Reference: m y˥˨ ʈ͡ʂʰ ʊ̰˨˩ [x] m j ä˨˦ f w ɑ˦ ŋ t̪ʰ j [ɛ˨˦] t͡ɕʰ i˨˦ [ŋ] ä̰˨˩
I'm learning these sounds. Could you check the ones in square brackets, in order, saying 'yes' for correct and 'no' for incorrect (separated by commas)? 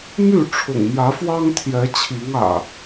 no, yes, yes